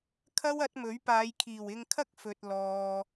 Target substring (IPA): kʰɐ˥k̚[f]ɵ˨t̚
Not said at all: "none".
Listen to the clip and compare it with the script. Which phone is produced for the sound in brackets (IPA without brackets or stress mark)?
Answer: f